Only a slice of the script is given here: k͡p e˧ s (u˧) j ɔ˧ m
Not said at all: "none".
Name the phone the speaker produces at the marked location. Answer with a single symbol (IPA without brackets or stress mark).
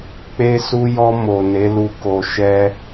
u˧